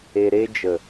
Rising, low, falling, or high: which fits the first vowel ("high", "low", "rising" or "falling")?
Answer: low